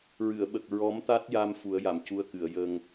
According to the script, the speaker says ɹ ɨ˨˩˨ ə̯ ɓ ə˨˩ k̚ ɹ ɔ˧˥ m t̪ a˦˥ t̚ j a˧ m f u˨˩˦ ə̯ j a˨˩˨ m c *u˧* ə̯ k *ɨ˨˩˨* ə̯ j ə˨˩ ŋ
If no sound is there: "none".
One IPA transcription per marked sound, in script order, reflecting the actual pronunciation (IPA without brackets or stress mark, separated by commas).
u˧, ɨ˨˩˨